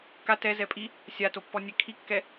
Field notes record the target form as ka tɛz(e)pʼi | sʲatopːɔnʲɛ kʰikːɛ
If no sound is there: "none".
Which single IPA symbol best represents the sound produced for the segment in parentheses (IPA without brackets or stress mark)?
ɛ